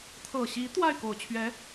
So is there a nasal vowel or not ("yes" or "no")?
no